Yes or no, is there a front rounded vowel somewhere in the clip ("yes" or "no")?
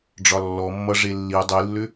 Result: yes